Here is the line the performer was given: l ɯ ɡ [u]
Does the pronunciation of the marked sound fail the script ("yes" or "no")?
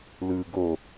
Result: yes